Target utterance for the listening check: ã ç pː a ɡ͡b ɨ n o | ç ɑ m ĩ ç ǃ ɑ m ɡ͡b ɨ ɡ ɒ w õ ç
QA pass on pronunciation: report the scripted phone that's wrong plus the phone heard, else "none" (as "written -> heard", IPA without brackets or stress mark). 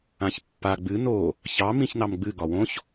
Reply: ǃ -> n